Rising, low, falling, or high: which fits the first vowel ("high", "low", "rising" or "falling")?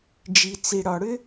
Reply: low